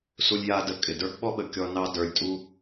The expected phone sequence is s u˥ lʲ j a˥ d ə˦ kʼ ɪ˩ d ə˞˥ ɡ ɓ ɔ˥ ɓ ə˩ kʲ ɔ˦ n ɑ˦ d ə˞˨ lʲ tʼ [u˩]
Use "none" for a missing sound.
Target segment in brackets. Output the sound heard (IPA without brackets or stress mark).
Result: u˦